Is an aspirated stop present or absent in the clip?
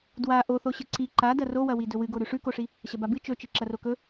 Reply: absent